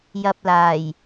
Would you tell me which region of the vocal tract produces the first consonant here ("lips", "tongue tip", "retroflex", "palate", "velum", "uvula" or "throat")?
palate